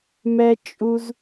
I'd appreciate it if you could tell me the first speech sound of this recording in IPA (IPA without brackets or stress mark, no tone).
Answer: m